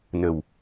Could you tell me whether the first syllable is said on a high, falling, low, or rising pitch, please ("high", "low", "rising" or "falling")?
low